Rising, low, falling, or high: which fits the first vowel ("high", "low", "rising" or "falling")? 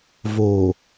low